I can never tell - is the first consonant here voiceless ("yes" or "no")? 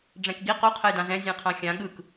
no